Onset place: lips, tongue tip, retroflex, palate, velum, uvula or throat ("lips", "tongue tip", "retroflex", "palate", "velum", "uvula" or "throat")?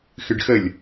velum